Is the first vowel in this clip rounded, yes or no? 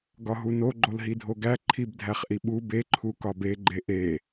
yes